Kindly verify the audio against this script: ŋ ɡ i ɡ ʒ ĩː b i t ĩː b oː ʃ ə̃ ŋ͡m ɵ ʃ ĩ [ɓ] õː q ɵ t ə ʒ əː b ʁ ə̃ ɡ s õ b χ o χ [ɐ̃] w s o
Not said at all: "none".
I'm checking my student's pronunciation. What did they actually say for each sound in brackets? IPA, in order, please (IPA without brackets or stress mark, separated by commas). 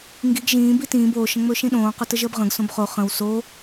ɗ, ə̃